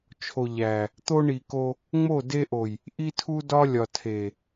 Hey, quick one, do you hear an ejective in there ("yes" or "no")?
no